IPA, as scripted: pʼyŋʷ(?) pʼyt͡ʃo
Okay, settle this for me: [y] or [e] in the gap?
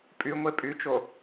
e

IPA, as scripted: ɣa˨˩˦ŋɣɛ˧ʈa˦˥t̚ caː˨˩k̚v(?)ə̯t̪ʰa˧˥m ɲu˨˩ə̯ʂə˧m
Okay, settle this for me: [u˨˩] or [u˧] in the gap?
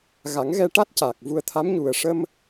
u˧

